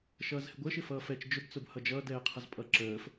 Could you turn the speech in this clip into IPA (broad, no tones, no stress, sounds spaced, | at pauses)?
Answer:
ʃ ʌː z h ɪ ɡʷ əː ʃ ɪ f ʌː f ɛ t͡ʃ d͡ʒ ʊ b t͡s ʊ b h ʌ d͡ʒ ʌː d ɛː qʰ ʌ z pʼ ʌ ǁ əː f